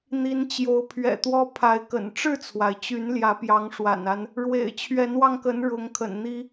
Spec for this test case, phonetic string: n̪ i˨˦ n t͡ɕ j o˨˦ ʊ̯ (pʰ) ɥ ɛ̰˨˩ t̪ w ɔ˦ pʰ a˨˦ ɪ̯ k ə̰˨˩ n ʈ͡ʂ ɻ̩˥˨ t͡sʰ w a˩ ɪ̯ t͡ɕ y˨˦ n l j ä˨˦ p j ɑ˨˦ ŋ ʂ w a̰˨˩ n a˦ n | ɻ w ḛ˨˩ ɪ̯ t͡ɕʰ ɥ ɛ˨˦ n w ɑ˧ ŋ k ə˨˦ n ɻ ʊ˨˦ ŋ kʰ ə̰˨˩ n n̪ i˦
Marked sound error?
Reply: no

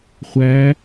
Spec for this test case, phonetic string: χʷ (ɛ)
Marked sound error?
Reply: yes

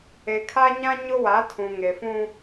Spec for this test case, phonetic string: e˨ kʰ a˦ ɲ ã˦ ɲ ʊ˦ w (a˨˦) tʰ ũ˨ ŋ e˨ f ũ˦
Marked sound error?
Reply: no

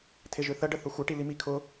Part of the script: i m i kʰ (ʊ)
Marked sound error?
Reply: no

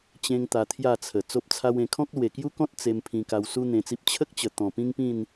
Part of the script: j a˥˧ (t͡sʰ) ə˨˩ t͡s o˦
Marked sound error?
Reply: no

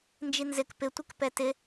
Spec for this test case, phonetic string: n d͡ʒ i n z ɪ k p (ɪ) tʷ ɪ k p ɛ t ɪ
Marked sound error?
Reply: no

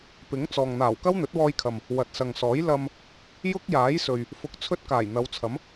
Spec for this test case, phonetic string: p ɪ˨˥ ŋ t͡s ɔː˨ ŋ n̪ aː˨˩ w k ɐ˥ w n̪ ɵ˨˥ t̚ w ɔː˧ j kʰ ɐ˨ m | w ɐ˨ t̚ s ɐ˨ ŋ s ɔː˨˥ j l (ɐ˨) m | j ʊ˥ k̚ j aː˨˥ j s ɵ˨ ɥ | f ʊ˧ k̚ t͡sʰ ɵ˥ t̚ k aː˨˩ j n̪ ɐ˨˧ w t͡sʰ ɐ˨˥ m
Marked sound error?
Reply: yes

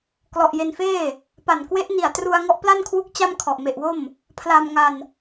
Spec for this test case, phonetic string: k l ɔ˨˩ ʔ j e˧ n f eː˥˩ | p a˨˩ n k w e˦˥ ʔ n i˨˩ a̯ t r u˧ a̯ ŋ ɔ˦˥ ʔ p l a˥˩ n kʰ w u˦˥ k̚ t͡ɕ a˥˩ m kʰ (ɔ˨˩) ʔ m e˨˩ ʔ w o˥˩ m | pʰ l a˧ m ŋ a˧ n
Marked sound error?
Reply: no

